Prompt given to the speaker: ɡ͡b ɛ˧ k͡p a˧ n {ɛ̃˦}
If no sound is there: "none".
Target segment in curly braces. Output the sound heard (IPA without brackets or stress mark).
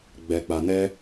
ɛ˦